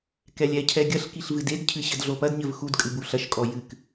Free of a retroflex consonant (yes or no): yes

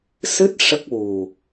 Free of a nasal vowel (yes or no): yes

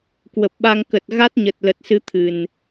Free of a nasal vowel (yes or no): yes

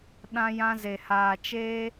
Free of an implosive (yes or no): no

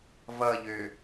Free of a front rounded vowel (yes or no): no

